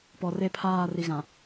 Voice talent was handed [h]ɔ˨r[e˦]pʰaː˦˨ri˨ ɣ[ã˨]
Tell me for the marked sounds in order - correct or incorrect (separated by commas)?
incorrect, correct, correct